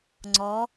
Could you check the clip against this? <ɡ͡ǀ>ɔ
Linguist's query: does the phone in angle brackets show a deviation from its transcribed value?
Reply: yes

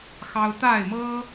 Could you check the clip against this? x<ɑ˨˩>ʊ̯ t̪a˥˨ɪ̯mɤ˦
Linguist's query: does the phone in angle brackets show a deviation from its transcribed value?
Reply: yes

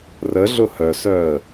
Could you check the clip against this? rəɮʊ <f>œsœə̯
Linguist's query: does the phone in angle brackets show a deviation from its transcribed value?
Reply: yes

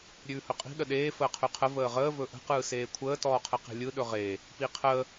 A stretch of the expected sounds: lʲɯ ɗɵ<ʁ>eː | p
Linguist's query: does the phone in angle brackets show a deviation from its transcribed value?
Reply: no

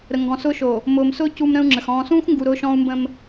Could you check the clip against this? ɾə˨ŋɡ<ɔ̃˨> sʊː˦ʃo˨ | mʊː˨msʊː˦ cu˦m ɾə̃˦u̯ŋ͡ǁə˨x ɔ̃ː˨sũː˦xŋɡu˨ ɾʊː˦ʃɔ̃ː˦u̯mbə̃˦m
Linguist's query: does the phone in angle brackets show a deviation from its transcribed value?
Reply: no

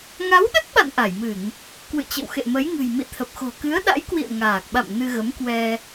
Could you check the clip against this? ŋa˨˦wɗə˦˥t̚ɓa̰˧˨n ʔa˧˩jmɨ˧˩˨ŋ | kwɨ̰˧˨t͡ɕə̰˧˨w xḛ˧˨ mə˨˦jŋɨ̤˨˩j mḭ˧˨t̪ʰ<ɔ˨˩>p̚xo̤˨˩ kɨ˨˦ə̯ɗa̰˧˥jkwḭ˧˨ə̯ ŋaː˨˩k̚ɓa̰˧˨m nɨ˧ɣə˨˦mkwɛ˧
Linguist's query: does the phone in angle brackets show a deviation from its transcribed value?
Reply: yes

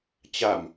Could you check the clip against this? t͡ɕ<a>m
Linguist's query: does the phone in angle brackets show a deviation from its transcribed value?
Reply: no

